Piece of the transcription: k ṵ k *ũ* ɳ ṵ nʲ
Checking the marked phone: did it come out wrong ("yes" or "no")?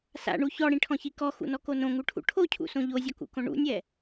yes